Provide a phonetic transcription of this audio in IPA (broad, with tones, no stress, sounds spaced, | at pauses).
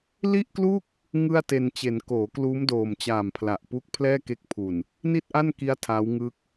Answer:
l i˥˩ ʔ k l u˥˩ k̚ | ŋ ɯ˥˩ a̯ t e˧ n t͡ɕ e˩˦ n k oː˩˦ k l uː˦˥ m d oː˨˩ m t͡ɕ aː˨˩ m pʰ l a˨˩ ʔ p uː˦˥ k̚ pʰ l ɛː˥˩ k e˦˥ k̚ pʰ u˨˩ n | n i˥˩ t̚ ʔ a˥˩ n k i˦˥ a̯ tʰ a˦˥ w ŋ ɯ˦˥ k̚